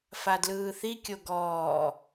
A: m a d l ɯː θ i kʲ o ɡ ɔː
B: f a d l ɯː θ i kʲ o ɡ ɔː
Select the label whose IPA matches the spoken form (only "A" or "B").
B